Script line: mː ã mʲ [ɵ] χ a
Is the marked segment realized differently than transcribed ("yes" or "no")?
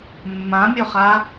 no